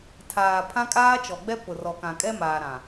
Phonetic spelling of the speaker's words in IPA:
tʰaː˨ pʰã˦kʼaː˦t͡ʃɔ˨ɡ͡bɛ˦ pʊ˨rɔ˨kã˨kʼɛ˦ maː˨ɾã˨

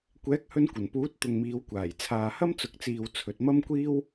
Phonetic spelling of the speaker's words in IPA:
kʷɛː˨˥k̚hɵ˧nkʷɐ˨˩npuː˨˥t̚ t̪ʊ˨ŋmiː˨˧wkʷaː˨˩j t͡sʰaː˨hɐ˥mt͡sʊ˨˥k̚t͡siː˨w t͡sʰɵ˨t̚mɐ˥mkʷiː˥w

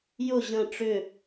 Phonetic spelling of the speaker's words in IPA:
jʊ ʑə̃ ʈ͡ʂʏ

